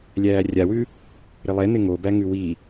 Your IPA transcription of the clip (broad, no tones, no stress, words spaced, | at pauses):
lʲæːrʲawʉ | ɾɪlˠɛn̪ɪ ŋobæŋʉ wi